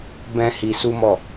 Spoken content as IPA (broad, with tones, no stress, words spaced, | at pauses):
bɛ̃˦hi˧su˦mɔ˦˨